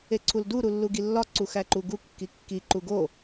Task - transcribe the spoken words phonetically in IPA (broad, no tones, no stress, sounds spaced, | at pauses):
e ǀʰ u l d u ɾ u lː u ɡ i lː ɒ ǀ u x æ ǃ u ɡ u kː i kː i ǃ u ɡ o